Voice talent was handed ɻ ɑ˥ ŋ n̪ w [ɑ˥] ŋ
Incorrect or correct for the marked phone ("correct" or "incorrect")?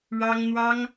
correct